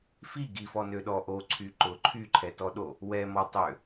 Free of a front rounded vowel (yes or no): no